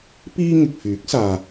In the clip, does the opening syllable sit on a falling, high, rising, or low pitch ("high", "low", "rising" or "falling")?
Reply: high